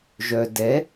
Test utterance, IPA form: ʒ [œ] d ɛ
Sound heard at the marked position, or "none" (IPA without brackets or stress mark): œ